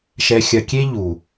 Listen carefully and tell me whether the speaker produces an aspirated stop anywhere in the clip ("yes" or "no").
no